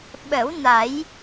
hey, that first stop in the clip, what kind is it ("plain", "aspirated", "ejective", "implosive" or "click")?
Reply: implosive